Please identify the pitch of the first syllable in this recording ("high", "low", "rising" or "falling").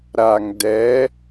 low